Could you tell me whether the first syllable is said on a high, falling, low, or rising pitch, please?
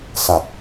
low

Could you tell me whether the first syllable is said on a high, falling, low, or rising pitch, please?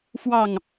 falling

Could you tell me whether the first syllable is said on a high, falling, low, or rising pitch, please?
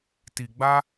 low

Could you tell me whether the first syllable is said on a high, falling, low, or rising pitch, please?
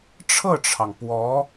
falling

